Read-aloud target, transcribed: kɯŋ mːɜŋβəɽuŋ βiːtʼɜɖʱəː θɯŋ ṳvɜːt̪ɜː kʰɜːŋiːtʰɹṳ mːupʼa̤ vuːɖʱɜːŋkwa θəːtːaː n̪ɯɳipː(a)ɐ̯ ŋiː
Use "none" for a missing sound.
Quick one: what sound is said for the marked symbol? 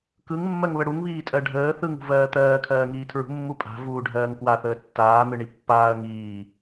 aː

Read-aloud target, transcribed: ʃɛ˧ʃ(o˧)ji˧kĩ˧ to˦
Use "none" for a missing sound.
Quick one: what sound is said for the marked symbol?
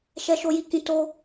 o˧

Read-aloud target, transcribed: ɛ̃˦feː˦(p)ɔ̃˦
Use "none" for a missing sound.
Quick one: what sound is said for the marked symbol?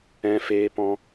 p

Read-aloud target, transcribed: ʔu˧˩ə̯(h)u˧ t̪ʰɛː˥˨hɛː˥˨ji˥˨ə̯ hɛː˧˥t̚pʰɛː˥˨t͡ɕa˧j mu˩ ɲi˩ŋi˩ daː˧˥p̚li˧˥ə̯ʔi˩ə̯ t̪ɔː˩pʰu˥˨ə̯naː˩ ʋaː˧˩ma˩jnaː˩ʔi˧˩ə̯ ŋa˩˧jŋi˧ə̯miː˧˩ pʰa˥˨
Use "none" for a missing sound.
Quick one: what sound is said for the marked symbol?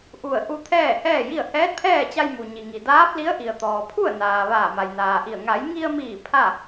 ʔ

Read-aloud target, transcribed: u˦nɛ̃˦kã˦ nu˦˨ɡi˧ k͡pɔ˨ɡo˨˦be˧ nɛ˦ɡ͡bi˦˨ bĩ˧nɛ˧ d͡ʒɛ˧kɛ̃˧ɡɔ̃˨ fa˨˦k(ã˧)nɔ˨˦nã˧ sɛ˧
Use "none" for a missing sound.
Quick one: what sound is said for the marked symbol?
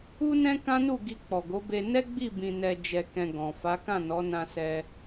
ã˦˨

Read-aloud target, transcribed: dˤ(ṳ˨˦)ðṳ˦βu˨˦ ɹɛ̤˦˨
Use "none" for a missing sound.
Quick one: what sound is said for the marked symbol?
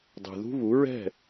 ṳ˨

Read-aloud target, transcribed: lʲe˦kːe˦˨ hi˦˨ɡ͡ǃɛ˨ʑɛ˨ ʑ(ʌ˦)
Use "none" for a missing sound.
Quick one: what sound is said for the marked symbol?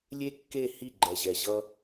ʌ˦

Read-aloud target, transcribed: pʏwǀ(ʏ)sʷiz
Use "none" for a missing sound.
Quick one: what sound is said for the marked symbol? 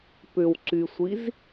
y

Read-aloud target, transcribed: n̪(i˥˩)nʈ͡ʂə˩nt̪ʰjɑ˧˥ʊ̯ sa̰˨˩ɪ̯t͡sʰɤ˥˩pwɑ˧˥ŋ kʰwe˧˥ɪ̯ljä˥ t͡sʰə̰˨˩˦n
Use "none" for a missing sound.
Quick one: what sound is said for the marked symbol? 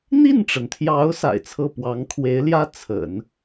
i˥˩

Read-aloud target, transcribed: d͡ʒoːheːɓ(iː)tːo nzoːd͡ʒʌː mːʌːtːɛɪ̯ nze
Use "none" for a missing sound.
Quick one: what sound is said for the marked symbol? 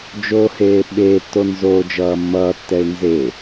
eː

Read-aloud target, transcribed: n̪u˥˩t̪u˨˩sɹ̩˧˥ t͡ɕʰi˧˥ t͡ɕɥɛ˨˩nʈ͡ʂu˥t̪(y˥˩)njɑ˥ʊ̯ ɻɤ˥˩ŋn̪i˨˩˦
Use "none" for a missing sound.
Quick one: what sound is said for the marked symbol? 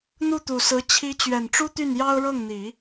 y˥˩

